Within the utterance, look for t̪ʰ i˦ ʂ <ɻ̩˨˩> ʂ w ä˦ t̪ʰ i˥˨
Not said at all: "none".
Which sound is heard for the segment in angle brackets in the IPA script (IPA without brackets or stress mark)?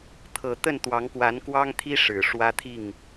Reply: ɻ̩˨˩